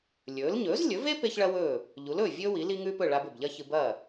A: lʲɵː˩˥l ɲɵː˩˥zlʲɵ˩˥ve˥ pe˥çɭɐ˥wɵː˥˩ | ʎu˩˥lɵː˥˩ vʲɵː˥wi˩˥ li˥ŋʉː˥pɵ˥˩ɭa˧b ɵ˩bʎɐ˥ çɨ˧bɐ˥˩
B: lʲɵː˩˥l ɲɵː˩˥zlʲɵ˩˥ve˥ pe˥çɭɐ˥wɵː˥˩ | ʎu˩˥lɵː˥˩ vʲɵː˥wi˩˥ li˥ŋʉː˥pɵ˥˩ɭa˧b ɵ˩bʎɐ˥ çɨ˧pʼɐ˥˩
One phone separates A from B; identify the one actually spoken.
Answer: A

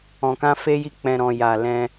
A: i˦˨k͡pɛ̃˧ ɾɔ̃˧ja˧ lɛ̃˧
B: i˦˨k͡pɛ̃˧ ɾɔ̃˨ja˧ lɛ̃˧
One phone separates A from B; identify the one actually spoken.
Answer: A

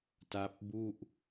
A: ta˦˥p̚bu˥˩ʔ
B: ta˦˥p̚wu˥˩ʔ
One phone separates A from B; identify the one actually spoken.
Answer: A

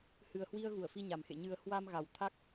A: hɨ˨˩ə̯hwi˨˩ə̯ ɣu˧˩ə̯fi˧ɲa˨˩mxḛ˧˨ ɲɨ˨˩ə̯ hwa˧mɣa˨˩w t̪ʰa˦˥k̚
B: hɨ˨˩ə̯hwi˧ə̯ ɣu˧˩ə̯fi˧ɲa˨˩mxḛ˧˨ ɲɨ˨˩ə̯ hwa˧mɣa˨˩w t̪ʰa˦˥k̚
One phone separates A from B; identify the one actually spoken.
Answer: B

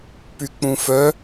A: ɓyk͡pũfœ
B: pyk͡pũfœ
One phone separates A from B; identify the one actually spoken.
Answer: B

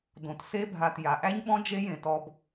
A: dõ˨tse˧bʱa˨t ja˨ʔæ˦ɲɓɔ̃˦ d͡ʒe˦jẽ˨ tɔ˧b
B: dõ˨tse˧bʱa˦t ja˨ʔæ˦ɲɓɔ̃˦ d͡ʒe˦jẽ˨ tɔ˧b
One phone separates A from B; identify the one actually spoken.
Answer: A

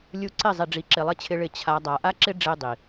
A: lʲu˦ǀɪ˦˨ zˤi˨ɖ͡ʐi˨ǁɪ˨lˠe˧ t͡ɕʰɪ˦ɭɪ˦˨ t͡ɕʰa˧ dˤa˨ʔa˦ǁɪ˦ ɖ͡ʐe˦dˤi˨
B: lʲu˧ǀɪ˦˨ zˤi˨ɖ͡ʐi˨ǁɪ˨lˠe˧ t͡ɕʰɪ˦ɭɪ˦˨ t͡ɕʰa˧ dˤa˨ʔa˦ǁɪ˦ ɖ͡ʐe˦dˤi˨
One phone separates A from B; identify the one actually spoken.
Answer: B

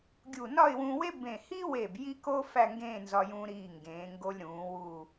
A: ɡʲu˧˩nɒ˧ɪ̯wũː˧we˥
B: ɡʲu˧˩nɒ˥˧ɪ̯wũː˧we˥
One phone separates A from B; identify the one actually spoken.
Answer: B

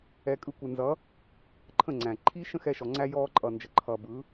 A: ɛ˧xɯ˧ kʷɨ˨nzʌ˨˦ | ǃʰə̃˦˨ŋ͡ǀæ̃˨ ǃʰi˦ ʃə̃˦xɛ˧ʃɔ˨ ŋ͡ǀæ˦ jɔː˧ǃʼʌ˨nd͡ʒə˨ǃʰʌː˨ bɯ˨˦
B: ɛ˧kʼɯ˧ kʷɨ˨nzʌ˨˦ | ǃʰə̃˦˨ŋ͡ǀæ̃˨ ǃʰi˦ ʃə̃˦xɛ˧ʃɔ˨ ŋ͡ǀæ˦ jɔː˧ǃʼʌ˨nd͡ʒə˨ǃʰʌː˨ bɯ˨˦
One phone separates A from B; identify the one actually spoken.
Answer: B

